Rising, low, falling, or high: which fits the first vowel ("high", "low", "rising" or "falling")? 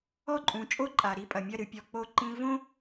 falling